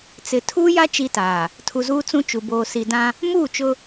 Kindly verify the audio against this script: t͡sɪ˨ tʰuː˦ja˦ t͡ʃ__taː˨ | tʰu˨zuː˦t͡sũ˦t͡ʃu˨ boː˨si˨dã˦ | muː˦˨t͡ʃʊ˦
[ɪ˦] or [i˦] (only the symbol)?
i˦